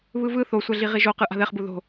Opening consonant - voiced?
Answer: yes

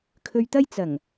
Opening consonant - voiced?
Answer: no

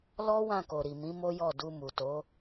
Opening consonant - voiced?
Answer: yes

